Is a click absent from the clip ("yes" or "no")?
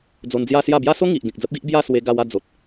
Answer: yes